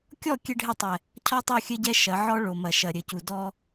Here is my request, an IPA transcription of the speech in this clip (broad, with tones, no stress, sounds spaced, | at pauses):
kʲ ɔ˦˨ kʲ ɘ˦ ɖʱ ɘ˦˨ tˤ ɛ˨ | cʰ ɔ˦ tˤ o˦˨ xʲ ɘ˦ ɟ ɛ˦ ʃ ɐ˨˦ ʕ ɔ˦ ɭ o˨ m ɐ˨ ʃ ɐ˨ ɾʲ ɘ˨ c u˨ d ɔ˦